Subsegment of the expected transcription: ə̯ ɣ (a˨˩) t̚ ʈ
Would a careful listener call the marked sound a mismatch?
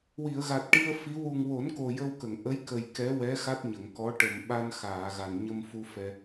no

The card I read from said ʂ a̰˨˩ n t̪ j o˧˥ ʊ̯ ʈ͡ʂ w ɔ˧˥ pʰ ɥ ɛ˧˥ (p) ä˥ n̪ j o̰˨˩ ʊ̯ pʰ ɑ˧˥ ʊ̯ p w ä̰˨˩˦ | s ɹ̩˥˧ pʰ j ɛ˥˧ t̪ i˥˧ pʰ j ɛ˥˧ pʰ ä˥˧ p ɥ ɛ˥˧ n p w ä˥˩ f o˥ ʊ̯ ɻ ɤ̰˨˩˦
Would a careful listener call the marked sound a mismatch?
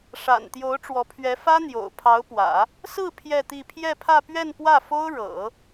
yes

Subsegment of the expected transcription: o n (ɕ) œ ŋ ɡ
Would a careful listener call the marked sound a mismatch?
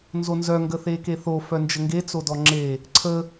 yes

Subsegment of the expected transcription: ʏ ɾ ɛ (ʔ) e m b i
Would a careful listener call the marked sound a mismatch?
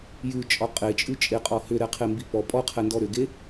yes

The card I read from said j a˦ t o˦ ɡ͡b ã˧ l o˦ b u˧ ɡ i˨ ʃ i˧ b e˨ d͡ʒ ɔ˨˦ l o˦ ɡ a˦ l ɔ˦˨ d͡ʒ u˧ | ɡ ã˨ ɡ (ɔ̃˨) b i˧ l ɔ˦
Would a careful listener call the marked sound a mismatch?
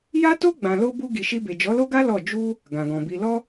no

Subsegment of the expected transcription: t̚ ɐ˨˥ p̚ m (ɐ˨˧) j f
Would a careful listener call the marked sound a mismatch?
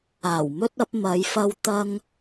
no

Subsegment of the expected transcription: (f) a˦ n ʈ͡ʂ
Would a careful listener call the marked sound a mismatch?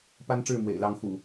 yes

